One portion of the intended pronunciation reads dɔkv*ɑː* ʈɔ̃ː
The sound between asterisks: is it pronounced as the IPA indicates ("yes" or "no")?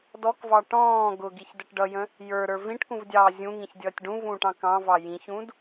no